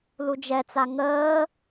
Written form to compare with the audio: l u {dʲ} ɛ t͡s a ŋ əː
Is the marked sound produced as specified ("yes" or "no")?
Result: no